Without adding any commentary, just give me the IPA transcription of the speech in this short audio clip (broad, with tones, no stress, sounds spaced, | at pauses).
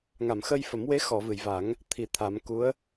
ŋ a˨˩˨ m x ə˧ j f ə˨˩˦ m w e˧˥ x ɔ˨˩˨ v ɨ˨˩˨ j v a˨˩˦ ŋ | t̪ʰ i˨˩ t̪ʰ a˨˩˦ m k u˧˥ ə̯